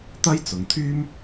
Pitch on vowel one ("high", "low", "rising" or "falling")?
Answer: high